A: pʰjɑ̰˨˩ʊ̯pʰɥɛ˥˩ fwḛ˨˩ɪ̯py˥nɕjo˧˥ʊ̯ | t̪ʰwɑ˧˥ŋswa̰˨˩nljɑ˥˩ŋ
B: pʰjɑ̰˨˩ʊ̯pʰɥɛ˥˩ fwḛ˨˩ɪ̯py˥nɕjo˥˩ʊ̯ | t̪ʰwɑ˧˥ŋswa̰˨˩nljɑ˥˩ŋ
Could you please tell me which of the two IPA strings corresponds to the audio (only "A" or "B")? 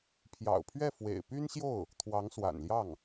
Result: B